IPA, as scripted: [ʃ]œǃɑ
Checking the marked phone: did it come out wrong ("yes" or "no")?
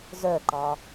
yes